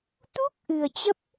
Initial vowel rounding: rounded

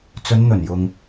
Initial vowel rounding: rounded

